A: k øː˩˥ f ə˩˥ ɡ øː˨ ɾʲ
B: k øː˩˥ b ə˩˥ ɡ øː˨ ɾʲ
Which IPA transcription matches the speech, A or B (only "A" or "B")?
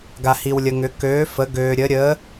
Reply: A